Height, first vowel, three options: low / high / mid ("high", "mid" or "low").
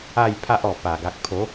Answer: low